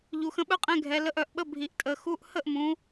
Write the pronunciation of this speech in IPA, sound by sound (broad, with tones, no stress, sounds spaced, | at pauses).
ʎ u˩˧˩ x ə̃˨˥ ɓ œ˦˥ qʼ ɛ̃˧˥˧ ɡʱ ɛ˩˧ l ə˨˥ ʔ œ˩˧ ʔ ɓ ə˧˥˧ bʱ i˩˧˩ ʔ tʼ ə˩˧˩ x u˧˥˧ ʔ h ə˥˩ ʔ m ũ˩˧